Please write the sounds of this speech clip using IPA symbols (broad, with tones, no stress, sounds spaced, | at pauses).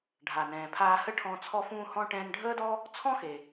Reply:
ɖʱ a˩ n ɛ̃ː˩ pʰ aː˧ h ə˥ ʈʰ ɔ̃˧ t͡sʰ ɔ˧ f ũː˧ h ɔ̃˧ ʈ ɛ̃ː˧ n ɖʱ əː˥ d ɔ˥ | t͡sʰ ɔ̃˥ x e˩